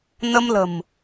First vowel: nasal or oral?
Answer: oral